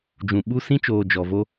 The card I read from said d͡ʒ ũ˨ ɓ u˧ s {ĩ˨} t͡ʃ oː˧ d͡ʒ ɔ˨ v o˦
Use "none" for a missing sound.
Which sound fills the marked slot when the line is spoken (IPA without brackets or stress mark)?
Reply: ĩ˦